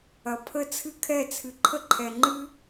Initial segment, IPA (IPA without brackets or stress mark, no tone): ɐ